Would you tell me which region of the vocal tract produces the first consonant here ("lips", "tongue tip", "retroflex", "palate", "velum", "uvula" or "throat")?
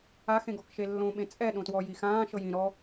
velum